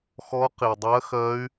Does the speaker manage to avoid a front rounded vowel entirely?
no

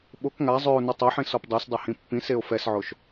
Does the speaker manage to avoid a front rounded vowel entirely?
no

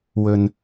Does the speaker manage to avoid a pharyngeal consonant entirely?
yes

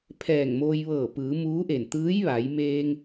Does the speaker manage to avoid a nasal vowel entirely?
yes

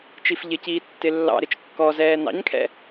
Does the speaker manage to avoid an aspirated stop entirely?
no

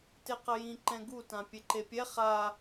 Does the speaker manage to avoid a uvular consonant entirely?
no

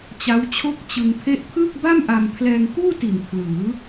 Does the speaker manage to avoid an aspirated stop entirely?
no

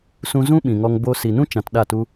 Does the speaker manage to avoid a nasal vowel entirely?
no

